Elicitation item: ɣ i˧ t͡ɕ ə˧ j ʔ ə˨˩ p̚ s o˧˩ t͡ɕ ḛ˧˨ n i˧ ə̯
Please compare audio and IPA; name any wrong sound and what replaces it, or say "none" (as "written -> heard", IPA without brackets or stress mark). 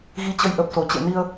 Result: none